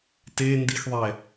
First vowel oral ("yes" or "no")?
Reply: yes